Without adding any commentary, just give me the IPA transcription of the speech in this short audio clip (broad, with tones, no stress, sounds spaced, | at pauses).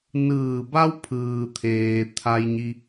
n ɯː˧˩ b a˧ w pʰ ɯː˩ t̪ʰ eː˩ t̪ʰ a˧ j ɲ i˧